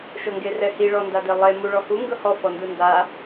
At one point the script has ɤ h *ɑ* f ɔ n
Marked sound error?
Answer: yes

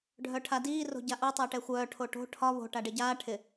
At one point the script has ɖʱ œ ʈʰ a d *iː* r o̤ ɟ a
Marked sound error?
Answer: no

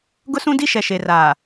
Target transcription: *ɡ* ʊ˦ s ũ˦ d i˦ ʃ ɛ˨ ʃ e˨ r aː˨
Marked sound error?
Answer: no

